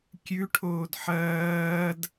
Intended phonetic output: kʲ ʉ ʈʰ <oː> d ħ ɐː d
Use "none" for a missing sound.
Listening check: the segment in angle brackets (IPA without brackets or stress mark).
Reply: oː